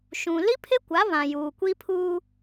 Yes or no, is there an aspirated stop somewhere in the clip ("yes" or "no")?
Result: yes